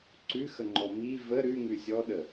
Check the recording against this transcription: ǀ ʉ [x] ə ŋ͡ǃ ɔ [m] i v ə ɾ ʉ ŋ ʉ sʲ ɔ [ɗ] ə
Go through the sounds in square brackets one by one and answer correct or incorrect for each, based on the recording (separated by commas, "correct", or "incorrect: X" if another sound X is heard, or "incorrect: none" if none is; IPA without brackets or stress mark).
correct, correct, correct